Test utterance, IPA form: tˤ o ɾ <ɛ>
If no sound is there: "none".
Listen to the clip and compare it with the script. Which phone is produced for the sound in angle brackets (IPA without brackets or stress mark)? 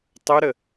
ə